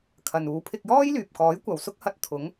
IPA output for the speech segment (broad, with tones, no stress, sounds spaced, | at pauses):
kʰ ɐ˨ n uː˨˧ pʰ ɪ˧ k̚ j ɔː˥ j l yː˨ p̚ k ɔː˨˥ j kʷ ɐ˨ w s ʊ˥ k̚ h ɐ˧ t̚ t̪ʰ ʊ˨˥ ŋ